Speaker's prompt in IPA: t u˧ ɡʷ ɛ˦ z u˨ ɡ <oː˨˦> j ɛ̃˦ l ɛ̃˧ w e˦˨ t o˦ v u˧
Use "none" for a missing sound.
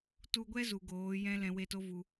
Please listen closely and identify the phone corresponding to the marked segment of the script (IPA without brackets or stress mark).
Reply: oː˨˦